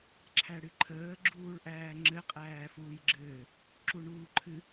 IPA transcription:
ǁʰ æ ɽ ɨ ǃʰ əː ɡ͡ǁ uː ɭ ʔ æː ŋ͡ǁ ɘ qʼ æː f uː j ɡ͡ǁ ɘː | ǁ u ɳ uː ǃʰ ɨ

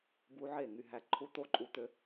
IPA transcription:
b u˧˥ ʕ e˥˩ ŋ y˧ ɦ æ˧ ǃʰ u˧ t̪ o˥˩ ǃʼ u˧ t̪ ø˧

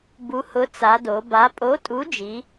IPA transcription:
b u˨˥ h ʊ˨˥ t͡s a˩˧ d o˩˧ b a˨˥ pʼ o˨˥ tʼ u˨˥ d͡ʒ i˩˧

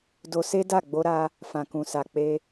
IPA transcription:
d o˧ s e˦ d a˦˨ ɡ͡b o˧ ɾ a˧ | f ã˨ k ũ˨ s a˨ k͡p e˧

